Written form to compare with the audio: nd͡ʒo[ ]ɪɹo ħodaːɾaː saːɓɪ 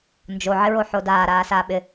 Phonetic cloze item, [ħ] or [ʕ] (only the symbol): ʕ